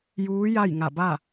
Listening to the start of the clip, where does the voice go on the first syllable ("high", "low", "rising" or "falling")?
rising